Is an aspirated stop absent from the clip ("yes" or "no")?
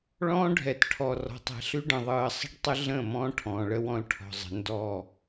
no